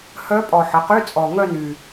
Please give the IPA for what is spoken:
h œ˧˥ pʼ ɔ˨˩ ħ ə˩˥ q y˧˥˧ t͡sʼ ɔ˨˩ ŋ œ˥˧ n y˨˩

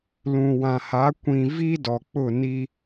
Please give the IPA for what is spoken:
l ũ˨ w ã˨ h a˨˦ kʷ ĩ˨ v i˦ d ɔ˨ k͡p ʊ˦˨ n i˦

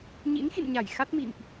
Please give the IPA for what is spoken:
ɲ ḭ˧˥ n x ḭ˧˨ n ɲ a˧˩ j x a˦˥ t̚ m ḭ˧˨ m ʔ

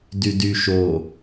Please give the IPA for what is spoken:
d y d y ʃ o

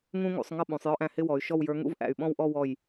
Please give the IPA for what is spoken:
ŋ ũ˥ ŋ ṵ˩˧ sˤ ŋ ʌ˥˧ ɓ ũ˩˧ sˤ j ɔ˥˧ ʔ æ̃˧˩ h ɪ˥˧ w ɔ˩˧ y̯ ʃ ɔ˥˧ w j ə˞˧˥ ŋ ṵ˥ v ʔ æ̰˧˩ y̯ ɓ ɔ̃˥˧ w ʔ ɔ˥˧ w ɔ˧˩ j

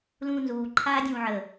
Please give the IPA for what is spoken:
l ũː n z uː ǃʰ aː dʲ ũː ʕ ə

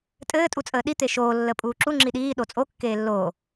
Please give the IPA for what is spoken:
tʼ ɘː tʼ u t͡sʼ əː ɗ i t̪ e ʃ oː lː ə pʼ uː ǁ u ŋ͡ǁ i ɗ iː ɗ o t͡sʼ o kː eː lː oː

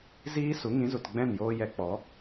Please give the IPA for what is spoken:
z iː˦ s u˨˦ ŋ ĩ˨˦ z u˨ t ɡ͡b ɛ̃˦˨ n j oː˧ j ɛ˧ k͡p ɔ˨˦

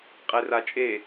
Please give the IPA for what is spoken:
qʼ e r a t͡ʃʼ e

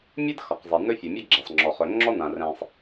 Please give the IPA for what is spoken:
mʲ ɛ˥ d x ɒ˩ q zˤ ɛ˩ n ɵ˥ fʲ ɵ˩ mʲ ɔ˥ ɡ͡ǁ æ˩ sˤ ŋ͡ǁ ɔ˩ χ ɵ˩ ŋ͡ǁ ɔ˥ n ã˩ r ɛ̃˩ sˤ

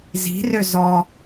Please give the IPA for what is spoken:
z i̤ r ø z ɔ

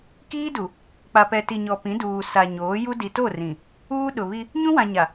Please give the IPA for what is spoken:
k iː˦ d u˨ | k͡p a˨ p ɛ˨ t i˨ ɲ ɔ˨ p ĩ˨˦ d uː˨ s a˨ ɲ oː˨˦ j u˦ d i˨ t o˦˨ r ĩ˨ | uː˦ ɗ ʊ˨ β i˦ | ɲ ũ˦ w ã˨ ɲ a˨

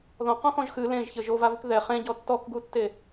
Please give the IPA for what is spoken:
ð ɔ̃ q ɔ̃ x ɔ̃ ʒ x ɨ l ẽ ʒ ç ɘ ʒ o v a v ɨ k ð ɛ χ ẽ ɟ ɔ tː ɔ k ɡ u tː e

